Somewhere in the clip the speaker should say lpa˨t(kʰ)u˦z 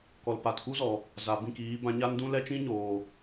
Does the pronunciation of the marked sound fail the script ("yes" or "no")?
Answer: yes